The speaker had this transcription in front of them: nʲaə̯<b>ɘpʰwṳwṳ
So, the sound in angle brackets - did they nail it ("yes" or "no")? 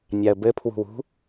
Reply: yes